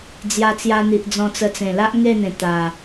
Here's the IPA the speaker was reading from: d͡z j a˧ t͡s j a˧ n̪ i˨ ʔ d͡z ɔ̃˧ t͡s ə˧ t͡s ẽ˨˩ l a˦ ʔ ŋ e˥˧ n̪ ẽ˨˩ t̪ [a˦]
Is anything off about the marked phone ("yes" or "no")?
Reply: yes